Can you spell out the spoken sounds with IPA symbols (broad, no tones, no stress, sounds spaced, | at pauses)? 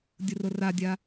dʲ ʊ r ʊ r a dʲ a